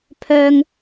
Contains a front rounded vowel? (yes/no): yes